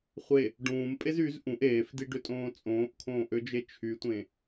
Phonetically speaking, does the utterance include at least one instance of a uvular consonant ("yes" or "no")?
yes